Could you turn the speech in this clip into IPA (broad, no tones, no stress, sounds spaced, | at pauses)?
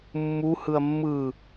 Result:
mː u h ɯ ɐ̯ mː ɯ